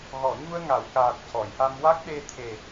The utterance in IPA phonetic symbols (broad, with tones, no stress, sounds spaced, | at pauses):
ɣ ɔ˨˩˨ ɲ u˧ ə̯ ŋ a˨˩˨ w k aː˨˩ t̚ c ɔ˨˩˨ j ʔ a˧ m w a˦˥ k̚ ɗ e˧ t̪ʰ e˨˩